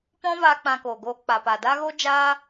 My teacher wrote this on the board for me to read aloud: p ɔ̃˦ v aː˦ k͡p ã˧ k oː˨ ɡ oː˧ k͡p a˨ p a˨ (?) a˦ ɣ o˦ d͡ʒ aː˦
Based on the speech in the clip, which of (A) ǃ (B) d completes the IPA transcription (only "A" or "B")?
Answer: B